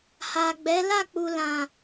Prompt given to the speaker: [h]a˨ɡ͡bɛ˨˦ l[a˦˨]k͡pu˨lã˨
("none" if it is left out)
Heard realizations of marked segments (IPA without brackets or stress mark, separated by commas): h, a˦˨